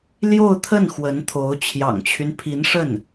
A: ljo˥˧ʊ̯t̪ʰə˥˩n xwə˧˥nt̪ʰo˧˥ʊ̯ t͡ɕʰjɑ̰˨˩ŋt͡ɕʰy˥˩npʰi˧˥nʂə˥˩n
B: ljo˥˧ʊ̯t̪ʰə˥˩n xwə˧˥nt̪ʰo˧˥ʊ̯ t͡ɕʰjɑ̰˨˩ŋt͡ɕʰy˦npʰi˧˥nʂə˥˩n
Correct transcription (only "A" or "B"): B